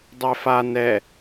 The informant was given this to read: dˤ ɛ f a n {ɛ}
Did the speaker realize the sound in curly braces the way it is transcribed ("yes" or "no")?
yes